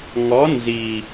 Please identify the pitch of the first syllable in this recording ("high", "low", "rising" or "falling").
rising